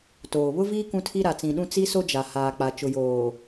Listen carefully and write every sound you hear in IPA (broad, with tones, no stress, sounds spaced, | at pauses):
t oː˨ β ʊ˦ v iː˦ k ũ˦ tʰ i˦ ɾ a˨ t͡s ĩ˨ ɗ ũ˦ t͡s i˦ s o˦ d͡ʒ a˨ h aː˨ k͡p a˨ t͡ʃ ʊ˨ j oː˨